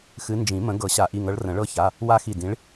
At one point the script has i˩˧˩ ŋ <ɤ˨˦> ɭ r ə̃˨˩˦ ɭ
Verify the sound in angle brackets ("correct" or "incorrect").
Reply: correct